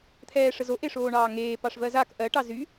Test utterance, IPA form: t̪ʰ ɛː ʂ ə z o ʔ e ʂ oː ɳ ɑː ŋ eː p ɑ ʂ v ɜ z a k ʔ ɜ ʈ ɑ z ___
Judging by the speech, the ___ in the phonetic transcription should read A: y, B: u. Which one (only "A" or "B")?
A